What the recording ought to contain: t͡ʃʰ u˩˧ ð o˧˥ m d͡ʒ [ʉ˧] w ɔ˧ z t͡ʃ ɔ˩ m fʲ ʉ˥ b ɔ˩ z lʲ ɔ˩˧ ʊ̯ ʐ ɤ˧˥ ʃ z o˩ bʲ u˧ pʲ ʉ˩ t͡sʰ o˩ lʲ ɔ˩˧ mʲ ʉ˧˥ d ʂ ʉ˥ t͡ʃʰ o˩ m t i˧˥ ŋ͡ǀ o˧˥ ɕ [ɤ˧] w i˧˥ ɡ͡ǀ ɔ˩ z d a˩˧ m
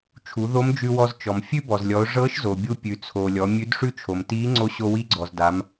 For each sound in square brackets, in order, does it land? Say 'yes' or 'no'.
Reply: yes, no

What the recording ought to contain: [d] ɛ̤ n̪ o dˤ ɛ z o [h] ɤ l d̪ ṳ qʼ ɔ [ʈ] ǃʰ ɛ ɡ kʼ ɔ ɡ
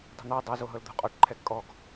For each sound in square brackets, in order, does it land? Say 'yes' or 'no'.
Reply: no, no, yes

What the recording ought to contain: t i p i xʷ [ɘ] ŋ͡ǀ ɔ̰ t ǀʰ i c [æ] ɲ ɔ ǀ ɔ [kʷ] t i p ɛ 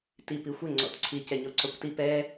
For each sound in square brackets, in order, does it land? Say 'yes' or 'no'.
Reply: yes, no, yes

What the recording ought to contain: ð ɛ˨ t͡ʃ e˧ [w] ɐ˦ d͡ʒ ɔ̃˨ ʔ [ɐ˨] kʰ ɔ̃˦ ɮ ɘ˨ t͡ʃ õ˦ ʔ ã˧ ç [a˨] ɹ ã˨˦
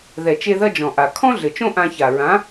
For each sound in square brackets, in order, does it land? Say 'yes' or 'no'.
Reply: no, no, yes

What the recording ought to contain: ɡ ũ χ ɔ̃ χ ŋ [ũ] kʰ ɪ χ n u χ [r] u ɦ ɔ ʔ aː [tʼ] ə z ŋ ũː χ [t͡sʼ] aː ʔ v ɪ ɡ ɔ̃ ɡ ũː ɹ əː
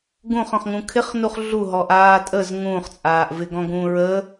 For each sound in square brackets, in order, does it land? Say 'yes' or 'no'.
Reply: yes, no, yes, yes

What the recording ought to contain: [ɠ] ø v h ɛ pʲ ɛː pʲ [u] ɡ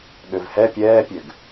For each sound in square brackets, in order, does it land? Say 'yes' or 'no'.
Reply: yes, no

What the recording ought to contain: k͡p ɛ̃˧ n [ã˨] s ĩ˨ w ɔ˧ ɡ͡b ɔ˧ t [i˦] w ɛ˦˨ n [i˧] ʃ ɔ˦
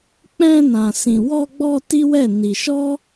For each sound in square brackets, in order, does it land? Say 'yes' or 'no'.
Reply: yes, yes, yes

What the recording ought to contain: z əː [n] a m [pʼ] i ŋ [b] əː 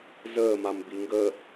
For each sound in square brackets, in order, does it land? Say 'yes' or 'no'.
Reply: no, no, no

